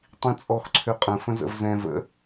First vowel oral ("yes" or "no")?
no